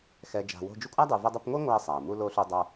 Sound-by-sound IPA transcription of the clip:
xɛ˨ d͡ʒa̤˨wo̤˦d͡ʒu˥ kʷʼa˥dˤu˨vʌ˦dˤʌ˦p ŋʷe˥ ŋʷa˦ə̯sˤa˩ə̯mu˦ lo˦ɬu˦dˤʌ˦

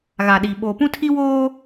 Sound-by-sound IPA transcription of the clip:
ɣa˨ɗi˨ ɓo˨pũ˦tʰi˦woː˦

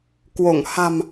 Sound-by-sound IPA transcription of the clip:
kwo˧˩ŋ ha̤˨˩m

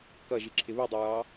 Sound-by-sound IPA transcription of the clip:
kʌʒiǁʰɪ βudˤiɹɑ

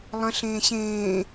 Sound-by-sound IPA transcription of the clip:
lˠɐ̃ ɬẽːɕẽː

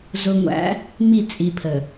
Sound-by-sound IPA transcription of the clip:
zʊ˨ŋʷæ̰˨˦ | mi˦˨t͡sʼi˨pʰə˨

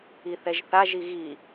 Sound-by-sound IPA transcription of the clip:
iθɛʒθa ʒiɣi

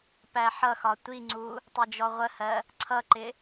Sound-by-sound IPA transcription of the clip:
pæħʌxɒ tʷiŋ͡ǀu | tˤɛd͡ʒɔʁʷəhɜ | ǀʰʌǃɪ

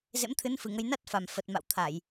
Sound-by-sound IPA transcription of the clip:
zḛ˧˥mt̪ʰɨ˨˦n fɨ˨˩ŋə˧j na˦˥t̚fa˨˩m fə˨˩t̚ma̰˧˨wt̪ʰa˧˩˨j

